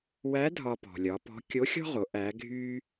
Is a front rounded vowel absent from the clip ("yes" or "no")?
no